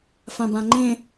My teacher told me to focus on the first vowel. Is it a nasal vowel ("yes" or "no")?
yes